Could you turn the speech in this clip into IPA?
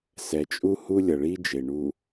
sɛ˨t͡ʃʼu˦hu˦ lʲʌ˨ɭi˦d͡ʒe˨ ɳu˨

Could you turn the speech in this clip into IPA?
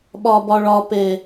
ɓɒbɒɭɒpe

